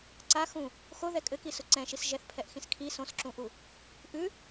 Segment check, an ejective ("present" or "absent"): present